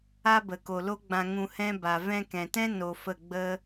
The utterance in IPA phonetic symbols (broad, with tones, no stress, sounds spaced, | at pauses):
a˦ b ə˨ k o˨ l o˦ ɡ͡b ã˧ ŋ ũ˧ h ɛ̃˦ b a˨ v ɛ̃˧ k ɛ̃˨ t ɛ̃˦ n o˧ f ə˦˨ ɡ͡b ə˦